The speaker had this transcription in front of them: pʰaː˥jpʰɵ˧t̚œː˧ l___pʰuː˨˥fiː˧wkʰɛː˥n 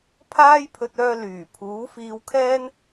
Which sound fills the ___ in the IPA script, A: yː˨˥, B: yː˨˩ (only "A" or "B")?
B